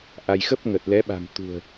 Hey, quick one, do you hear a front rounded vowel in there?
no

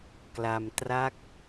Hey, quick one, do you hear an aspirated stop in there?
no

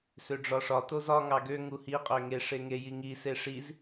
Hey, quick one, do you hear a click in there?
no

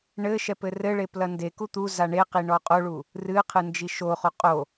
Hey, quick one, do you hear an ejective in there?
yes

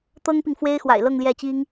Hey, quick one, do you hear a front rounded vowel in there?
no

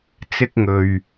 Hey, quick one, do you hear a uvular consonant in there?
no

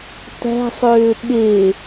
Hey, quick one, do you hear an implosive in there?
yes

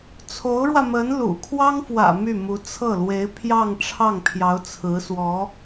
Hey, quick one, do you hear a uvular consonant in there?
no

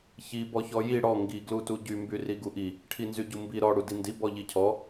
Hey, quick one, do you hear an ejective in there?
no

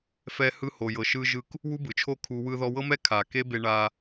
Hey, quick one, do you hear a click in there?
no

